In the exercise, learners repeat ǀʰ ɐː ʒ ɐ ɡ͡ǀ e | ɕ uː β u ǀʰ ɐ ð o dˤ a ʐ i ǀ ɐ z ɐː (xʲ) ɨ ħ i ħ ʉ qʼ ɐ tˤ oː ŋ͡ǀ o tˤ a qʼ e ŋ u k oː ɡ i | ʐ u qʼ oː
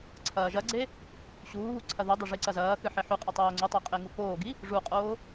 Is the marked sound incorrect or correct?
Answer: incorrect